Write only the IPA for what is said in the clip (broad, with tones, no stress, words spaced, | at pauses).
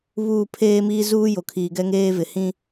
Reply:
βuː˦˨ pʰeː˦miː˦zuː˦ jo˨kʰiː˨ɡɛ˦ŋeː˦ vɪ˨ hĩ˦